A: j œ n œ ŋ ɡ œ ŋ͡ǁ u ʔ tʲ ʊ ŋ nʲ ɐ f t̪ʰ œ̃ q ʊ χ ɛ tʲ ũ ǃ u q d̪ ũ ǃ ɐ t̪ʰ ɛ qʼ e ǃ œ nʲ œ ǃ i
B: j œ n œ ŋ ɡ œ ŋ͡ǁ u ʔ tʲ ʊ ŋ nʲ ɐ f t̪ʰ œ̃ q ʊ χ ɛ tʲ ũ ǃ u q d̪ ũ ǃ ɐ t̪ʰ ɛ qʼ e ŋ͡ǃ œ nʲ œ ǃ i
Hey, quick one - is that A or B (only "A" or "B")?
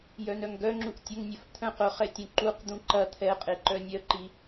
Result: A